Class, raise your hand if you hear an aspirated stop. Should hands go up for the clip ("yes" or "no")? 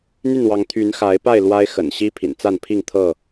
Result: yes